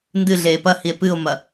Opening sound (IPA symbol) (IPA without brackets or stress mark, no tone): n